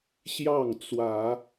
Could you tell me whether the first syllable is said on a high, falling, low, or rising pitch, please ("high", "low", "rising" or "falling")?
falling